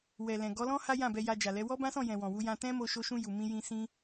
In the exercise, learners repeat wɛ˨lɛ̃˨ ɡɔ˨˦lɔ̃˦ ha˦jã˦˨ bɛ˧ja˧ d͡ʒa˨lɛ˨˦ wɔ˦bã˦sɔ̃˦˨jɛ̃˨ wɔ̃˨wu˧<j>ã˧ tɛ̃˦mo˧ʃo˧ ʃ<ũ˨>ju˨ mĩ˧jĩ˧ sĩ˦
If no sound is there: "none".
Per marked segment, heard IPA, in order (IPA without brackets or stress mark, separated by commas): j, ũ˧